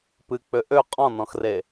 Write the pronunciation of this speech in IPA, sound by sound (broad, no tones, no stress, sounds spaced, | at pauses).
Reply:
p ɨ k͡p ø ʔ ø qʼ ɔ̃ n ɔ̃ x r e